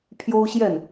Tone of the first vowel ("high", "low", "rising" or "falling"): high